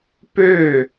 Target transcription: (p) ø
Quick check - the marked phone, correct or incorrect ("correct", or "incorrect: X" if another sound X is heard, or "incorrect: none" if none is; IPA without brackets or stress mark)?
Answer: correct